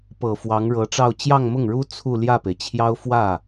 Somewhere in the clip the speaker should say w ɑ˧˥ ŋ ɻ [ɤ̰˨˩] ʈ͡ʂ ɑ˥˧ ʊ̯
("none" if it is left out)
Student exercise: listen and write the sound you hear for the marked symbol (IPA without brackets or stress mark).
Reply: ɤ˧˥